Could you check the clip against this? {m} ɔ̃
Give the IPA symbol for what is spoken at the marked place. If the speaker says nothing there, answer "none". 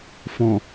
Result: f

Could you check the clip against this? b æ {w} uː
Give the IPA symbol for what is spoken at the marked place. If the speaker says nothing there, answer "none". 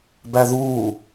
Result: ð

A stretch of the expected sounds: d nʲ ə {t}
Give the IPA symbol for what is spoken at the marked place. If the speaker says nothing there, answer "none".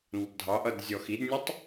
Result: tˤ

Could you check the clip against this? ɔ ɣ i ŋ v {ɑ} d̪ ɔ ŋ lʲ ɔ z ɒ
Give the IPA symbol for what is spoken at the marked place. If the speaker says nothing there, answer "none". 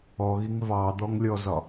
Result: ɑ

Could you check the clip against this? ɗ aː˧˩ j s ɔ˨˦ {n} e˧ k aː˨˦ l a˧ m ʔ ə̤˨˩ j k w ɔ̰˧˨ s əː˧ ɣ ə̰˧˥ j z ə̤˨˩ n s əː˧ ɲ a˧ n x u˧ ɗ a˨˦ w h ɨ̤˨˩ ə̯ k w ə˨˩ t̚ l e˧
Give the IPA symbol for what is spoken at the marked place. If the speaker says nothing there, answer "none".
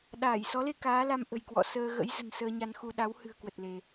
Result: l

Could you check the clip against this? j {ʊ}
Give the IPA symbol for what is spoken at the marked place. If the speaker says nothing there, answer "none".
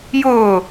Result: ʊː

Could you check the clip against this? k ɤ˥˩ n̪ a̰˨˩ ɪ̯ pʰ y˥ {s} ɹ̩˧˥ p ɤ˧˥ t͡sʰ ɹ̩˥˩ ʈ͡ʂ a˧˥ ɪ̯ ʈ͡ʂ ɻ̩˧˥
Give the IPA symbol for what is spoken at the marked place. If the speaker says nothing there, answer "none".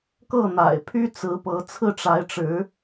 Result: t͡s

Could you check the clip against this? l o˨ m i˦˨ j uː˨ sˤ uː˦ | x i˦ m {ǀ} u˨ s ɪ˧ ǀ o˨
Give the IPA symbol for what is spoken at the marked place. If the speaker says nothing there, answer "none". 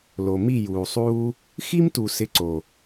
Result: t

